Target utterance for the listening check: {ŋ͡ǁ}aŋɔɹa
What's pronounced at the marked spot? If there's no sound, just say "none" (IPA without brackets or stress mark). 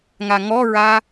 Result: ŋ